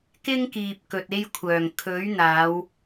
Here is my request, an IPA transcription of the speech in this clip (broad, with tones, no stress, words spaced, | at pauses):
kɪ˥ŋkiː˨p̚ kɵ˨t̚e˥jkʷʰœː˨˩ŋ kʰɵ˨˥ɥn̪aː˨˧w